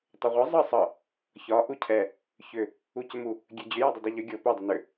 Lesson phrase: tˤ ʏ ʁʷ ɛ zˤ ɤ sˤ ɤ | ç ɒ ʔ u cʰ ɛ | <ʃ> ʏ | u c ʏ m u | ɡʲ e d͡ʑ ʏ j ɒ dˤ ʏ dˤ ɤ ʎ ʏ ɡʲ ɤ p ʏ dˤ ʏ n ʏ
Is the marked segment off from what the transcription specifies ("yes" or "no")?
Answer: yes